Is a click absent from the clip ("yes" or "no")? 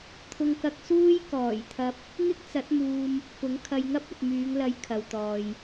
yes